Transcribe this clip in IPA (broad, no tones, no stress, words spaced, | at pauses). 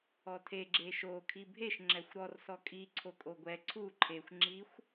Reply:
ɔtʰe ɡ͡ǁeʃo kʰibʱeʃ ŋ͡ǁɛxʷɾɔr sɔkʼi ǀʰokʼoɡʷɛ ǀʰu ǃʰexʷ ŋ͡ǁixʷ